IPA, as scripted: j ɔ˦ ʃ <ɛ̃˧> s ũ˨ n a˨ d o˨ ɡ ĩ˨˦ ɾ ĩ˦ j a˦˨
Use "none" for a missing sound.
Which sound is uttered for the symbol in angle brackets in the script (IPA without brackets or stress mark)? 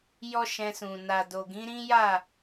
ɛ̃˧